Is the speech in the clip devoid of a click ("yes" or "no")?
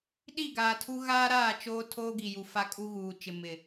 yes